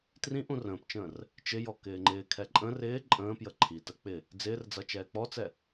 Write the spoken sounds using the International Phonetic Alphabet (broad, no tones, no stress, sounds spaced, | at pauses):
t r ĩ ʔ ũ r ə̃ː p t͡ʃ ə̃ː r | t͡ʃ ɪ j ɔ k ɪː ŋ͡ǃ ɪː kʰ ɛ ǃʼ ə̃ r ɪː ǃʼ ə̃ː p j ə ǃʰ i t ə k͡p ɪ | d͡z ɪː r d͡z ʌ t͡ʃ ɛː k͡p ɔ t͡s ɛ